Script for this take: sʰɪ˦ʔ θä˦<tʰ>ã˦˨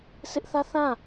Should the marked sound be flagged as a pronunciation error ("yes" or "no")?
yes